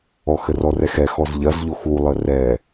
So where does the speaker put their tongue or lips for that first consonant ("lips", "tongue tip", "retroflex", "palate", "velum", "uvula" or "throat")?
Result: velum